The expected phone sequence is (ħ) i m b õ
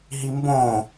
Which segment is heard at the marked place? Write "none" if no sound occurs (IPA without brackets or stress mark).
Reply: ɦ